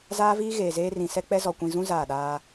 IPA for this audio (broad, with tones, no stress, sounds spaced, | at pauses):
z aː˦ v iː˦ ɣ eː˨ z eː˦ r ĩ˨ s ɛ˦ k͡p ɛ˦ z ɔ˨ kʷ ĩ˨ z ũ˦ z aː˦˨ ɗ aː˦